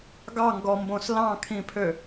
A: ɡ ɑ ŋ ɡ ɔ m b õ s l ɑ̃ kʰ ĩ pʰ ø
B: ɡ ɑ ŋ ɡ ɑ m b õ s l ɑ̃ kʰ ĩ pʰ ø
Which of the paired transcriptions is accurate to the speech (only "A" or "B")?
A